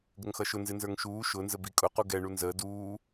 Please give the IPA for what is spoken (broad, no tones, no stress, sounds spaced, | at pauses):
ɡ ə ŋ x ʌ ʃ ʊ n z ɪ n z ə˞ ŋ ʃ uː ʃ ʊ n z ə b i kʼ ʊ q u ɡ ɛ ɳ u n z əː d uː